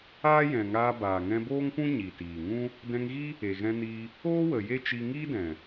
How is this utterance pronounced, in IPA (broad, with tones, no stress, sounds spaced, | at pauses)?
aː˦ j ɛ̃˨ ŋ aː˧ b aː˨ ŋ ɛ̃˧ b oː˦ ŋ p ũ˦ ɲ i˨ t iː˨ ŋ ũ˦ | d ɛ̃˧ ŋ ɣ i˦ | e˨ ɣ ɛ̃˧ n iː˧ | oː˦ w ə˨ j e˦ t͡ʃ i˧ ŋ iː˦ d ɛ̃˨